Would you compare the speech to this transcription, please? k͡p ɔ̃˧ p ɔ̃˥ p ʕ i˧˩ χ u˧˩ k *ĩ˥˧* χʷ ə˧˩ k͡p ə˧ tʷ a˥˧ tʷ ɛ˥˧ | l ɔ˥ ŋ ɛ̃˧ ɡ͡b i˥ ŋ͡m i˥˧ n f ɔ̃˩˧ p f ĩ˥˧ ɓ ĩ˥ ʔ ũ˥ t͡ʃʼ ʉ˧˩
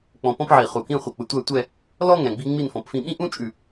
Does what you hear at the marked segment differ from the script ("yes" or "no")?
no